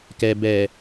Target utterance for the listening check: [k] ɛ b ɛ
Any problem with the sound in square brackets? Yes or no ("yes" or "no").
no